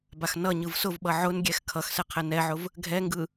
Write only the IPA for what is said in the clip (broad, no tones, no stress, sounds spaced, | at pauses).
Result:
b a x n ʌ ɲ ɯ v s ʊ v ɓ ʌ ʕ ʊ n ɡʲ ɛ x kʰ ʌ x s ɛ qʰ ɛ n ɛ ʕ ʊ v | ɡʱ ɛ ŋ ɡ ɯ